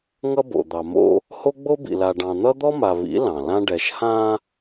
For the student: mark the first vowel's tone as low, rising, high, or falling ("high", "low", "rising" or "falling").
high